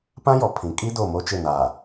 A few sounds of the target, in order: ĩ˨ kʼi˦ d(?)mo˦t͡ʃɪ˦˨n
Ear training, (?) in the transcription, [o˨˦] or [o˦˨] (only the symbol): o˦˨